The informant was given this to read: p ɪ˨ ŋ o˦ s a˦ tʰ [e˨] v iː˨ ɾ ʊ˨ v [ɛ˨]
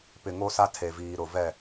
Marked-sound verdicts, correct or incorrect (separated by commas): correct, incorrect